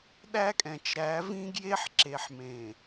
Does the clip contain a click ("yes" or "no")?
yes